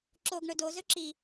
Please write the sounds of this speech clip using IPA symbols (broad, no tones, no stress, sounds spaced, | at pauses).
ǁ o ɡ ɳ ɵ d o z ɵ ǁ i